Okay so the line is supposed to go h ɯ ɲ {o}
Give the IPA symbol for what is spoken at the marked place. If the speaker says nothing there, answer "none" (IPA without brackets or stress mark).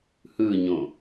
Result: õ